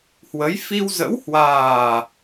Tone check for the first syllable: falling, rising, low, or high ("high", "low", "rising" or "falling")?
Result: rising